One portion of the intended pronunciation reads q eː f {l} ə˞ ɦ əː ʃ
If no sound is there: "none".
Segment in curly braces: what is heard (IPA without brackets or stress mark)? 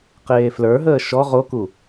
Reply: l